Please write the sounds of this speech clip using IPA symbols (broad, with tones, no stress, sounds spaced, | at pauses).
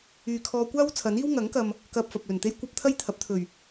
yː˨ kʰ ɔː˧ kʷ aː˥ w t͡sʰ ɐ˨˥ n iː˥ w ŋ ɐ˨˥ ŋ k ɐ˨ m | k ɐ˧ p̚ f ɐ˨ p̚ l ɵ˨˩ n t̪ e˥ j kʷ ɐ˥ p̚ t̪ʰ ɐ˥ j t̪ʰ ɐ˨˥ p̚ t̪ʰ ɵ˨˩ ɥ